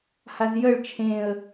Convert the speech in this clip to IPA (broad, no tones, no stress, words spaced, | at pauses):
hazjəɭ t͡ʃʰẽə̯